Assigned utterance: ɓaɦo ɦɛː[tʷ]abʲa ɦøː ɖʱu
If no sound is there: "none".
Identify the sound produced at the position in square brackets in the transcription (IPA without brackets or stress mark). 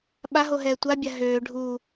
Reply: tʷ